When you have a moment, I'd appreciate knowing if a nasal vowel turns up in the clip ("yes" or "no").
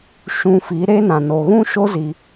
yes